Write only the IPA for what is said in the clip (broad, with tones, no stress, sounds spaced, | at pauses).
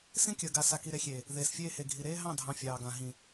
s ĩ˦ kʲ əː˨ ɡ a˨ s a˨ k i˨ ɾ e˨ xʲ eː˨ | ð eː˨ s fʲ eː˦ h e˨ ɡʱ i˨ ɾ eː˦ ɦ ɑ̃˦˨ dʱ ɑ̃˨ fʲ ɑː˨ ɡ ã˨ ɦ ĩ˨